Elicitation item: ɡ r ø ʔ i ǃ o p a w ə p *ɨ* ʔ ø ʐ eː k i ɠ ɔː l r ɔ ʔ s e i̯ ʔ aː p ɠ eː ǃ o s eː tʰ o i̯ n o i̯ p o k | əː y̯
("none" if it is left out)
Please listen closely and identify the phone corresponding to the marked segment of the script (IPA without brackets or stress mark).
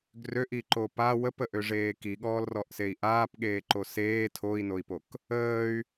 ə